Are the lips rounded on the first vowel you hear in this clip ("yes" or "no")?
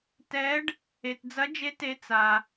no